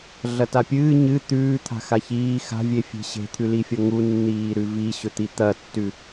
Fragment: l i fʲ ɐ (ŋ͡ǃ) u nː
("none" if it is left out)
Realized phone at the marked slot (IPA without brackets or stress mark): ŋ